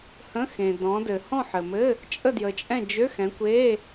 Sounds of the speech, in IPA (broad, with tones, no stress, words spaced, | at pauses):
hə̃˧˥˧xẽ˨ dɔ̃˨˦dɘ˨ hɔ̃˦˨ ħɘ˨mɘ˧˥˧ | t͡ʃʼə˦˨ djə˨t͡ʃʼɛ̃˦˨ d͡ʒø˧˥˧xɛ̃˨˦kʷe˧˥˧